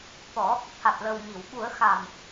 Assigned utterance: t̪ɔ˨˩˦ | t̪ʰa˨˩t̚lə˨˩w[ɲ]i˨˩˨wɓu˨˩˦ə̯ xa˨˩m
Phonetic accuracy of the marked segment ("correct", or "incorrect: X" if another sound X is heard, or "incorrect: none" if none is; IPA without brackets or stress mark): correct